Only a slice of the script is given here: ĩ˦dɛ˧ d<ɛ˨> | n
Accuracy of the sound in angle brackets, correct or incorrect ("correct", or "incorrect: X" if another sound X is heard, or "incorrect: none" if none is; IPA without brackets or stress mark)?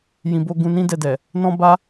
correct